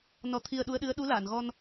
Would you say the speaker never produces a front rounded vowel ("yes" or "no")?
yes